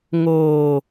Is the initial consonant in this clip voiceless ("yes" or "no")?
no